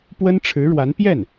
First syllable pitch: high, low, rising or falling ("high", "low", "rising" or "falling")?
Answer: high